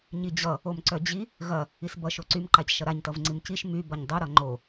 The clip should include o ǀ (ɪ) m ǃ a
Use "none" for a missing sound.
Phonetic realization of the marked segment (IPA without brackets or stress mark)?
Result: y